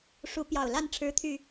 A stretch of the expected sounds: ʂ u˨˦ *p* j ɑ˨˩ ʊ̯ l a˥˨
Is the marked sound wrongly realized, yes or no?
no